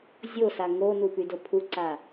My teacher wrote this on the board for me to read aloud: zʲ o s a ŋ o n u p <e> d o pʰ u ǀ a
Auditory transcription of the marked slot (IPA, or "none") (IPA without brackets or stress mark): y